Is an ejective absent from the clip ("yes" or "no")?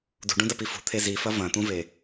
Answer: yes